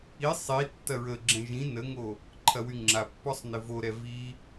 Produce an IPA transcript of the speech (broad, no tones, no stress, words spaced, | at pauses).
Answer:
i sˤi tːɐɹəɡ͡ǁɛ̃ ʒĩ nəŋo | ǃʰɐwyŋ͡ǁapːɔsˤ nɪvoɾɛ vi